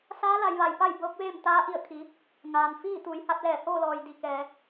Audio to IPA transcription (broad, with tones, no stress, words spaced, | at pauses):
saː˧˥la˩˧jʋa˩jpa˥˨j bɤː˧˥k̚ʋeː˥˨m t̪aː˧˥ʔi˧˩ə̯kʰi˩˧ | ŋaː˩nfiː˥˨ t̪uː˩˧jha˧t̚lɛː˧˩hoː˥˨ lɔː˩jdi˩ kɛː˩˧